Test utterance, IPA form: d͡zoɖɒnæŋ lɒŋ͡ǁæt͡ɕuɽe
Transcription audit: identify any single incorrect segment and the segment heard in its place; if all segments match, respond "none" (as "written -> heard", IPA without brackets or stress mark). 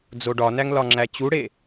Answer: none